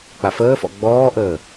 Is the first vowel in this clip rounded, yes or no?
no